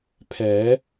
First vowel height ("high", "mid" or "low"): mid